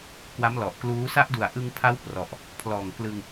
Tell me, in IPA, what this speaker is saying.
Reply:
k w a˦˥ m l ɔ˨˩ ʔ k l uː˦˥ s a˦˥ ʔ d u˨˩ a̯ ʔ ɯ˧ ŋ pʰ a˦˥ w p r ɔ˨˩ ʔ | pʰ l ɔː˨˩ ŋ k l ɯ˧ ŋ

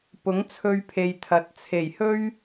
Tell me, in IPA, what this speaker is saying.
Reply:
p ʊ˨˥ ŋ t͡sʰ ɵ˧ ɥ pʰ e˨ j t̪ʰ ɐ˨˥ t̚ t͡sʰ e˨˩ j h ɵ˥ ɥ

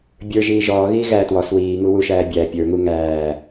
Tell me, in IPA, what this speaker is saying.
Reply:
bʲ ə˞ ʒ iː ʒ ɔː ɣ iː ɣ æ t w ɔ s w iː ŋ u w u ʃ æː bʲ æ pʲ ə˞ ŋ u ŋ æː

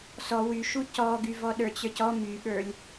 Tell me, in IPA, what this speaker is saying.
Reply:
s ɔ w y ʃ u c ɔ ɡ y v ɔ ɗ ə˞ t͡ɕ ə˞ c ɔ m y ɠ ə˞ lʲ

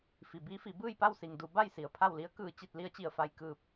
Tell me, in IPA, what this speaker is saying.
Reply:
f i˩ b iː˧˥ f i˩˧ b ɯː˥˨ j p a˥˨ w s i˩ ŋ d u˩˧ b a˥˨ j s i˩ ə̯ pʰ a˥˨ w l i˧˥ ə̯ k ɯː˧˩ t͡ɕ i˥˨ t̚ l i˧˥ ə̯ t͡ɕ i˧˩ ə̯ f a˧ j k ɯː˧ p̚

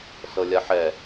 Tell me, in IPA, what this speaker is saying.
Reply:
s ɤ lʲ a ħ ɛ

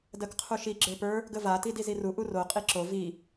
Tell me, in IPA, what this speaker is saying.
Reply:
d ɜ k qʰ u ʃ i ɡ͡ǁ ə˞ p ə˞ | ɡ ə v a t i d i z i r u ʔ u r o qʼ i ǁ o v i

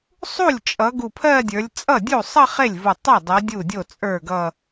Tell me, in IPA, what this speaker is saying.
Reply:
sˤ u˥˩ lʲ t͡ʃʼ ʌ˨˦ ɡ u˧˩ pʰ ɜ˥˧ dʲ ə˞˨˦ lʲ t͡sʼ ʌ˥˩ dʲ u˥˩ sˤ ʌ˥˧ χ e˥˩ lʲ v u˧˩ tˤ ɛ˥˩ dˤ ɜ˨˦ dʲ u˥˩ dʲ o˥˩ t͡sʼ ə˞˥˩ ɡ ʌ˥˧

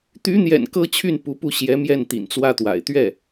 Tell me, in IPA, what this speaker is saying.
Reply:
t̪ y˧˥ n̪ j ɛ̰˨˩ n k ɤ˥ t͡ɕʰ y˥˩ n p u˧˥ p u˥˩ ɕ j ɛ˧˥ m j ɛ˥˩ n t̪ ḭ˨˩ n t͡s w ä˥ t̪ w a̰˨˩ ɪ̯ t̪ ɥ ɛ˥˩

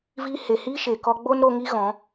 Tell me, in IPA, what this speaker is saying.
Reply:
v iː˧ h e˨ h iː˦ ʃ e˨ k ɔ˧ ɡ͡b o˦ n ɾ o˧ ŋ i˦ ɣ ɔ̃˨˦

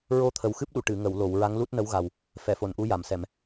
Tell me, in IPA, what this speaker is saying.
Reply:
ɹ o˧ t̪ʰ ə˨˩ w x ɨ˦˥ p̚ ɗ u˨˩˨ ʈ ɨ˨˩˨ ŋ ə˨˩˨ w l o˨˩˨ w ɹ a˧˥ ŋ l u˦˥ t̚ n ə˧˥ w ɣ a˨˩ w | f ɛ˨˩˨ f o˨˩˨ n ʔ u˧˥ j a˨˩˨ m s ɛ˨˩˨ m

